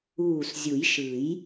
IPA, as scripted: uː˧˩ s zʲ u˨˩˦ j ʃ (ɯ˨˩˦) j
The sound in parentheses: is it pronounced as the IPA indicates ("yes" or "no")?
yes